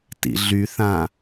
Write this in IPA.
t ḭ ɮ y θ ã

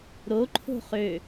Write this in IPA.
ɾ o ǃʰ o̤ χ ø

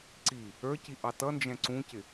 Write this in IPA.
ǀ i | ə˞ c i ʔ ɑ t ʌ n d͡ʒ ɛ̃ ǀ ũ c ɪ

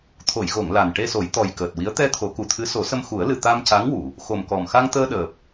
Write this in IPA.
t̪ʰ o˨˩˨ j ɣ o˨˩˨ ŋ l a˨˩ n ʈ e˧ s o˨˩˦ j t̪ ɔ˨˩ j k əː˨˩ t̚ w i˧˥ ə̯ t̪ ɛ˧ t̪ʰ o˨˩˦ k u˨˩ t̪ʰ ɨ˧˥ s o˨˩˦ s ə˧ m x u˨˩˦ ə̯ l ɨ˨˩ t̪ a˧ m c a˧˥ ŋ w u˨˩˨ | x o˨˩ m k ɔ˨˩ m x a˧ ŋ t̪ əː˧ ɗ əː˨˩ p̚

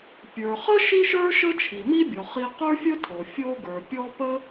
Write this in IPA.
pʲ ə˞˩ χ ə˥ ʃ i˥ ʃ ə˞˥ ʃ ə˥ t͡ʃʰ i˩ m i˥ bʲ ɔ˩ χ i˧ q ə˞˥ fʲ ə˥ tʰ o˩ fʲ o˧ ɡ ə˞˩ pʲ ɔ˥ p ə˥

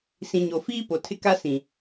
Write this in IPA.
s ĩ˨ ɲ o˨ f iː˦ p o˨ tʰ ɪ˦ k a˦ s ĩ˨

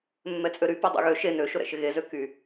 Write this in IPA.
mː ɛ t͡sʼ ø ɾ y p ɛ dˤ ɛ̰ ɣ ø ʃ e n ø ʃ ʊ ɾ ɛ̰ ʃ ɪ ɣ e z ø k y

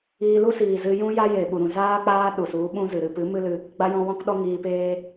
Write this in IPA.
iː˧ l u˦ s iː˨ z ɨ˧ j ũ˦ j a˦ j e˨ ɓ u˨ ɾ ũ˨ z aː˦ k͡p aː˦ ɗ u˨ s u˨˦ ɓ ũ˦ z ɨ˨ ɾ ɨ˧ p ɨ˨˦ m ɨ˦ l ɨ˧ | ɡ͡b a˦ j ɔ̃˦ w ɔ̃˦ k ɗ ɔ˦ ŋ iː˧ p eː˦

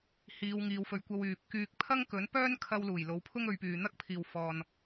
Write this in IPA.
h iː˨˧ w ŋ iː˨˧ w f ɵ˨ ɥ kʷ ɐ˧ w yː˨ p̚ k yː˧ k̚ pʰ ɐ˥ ŋ k ɵ˨˥ n p œː˥ n kʰ ɐ˧ w l uː˨˩ j l o˨˥ w pʰ ʊ˥ ŋ ɵ˨˧ ɥ p yː˨ n̪ ɐ˥ k̚ pʰ iː˨ w f ɔː˨ n

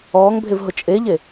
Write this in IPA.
ɔː ŋ bʱ e v ɦ ʊ t͡ʃʼ e ʎ e

